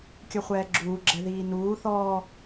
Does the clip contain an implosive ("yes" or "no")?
no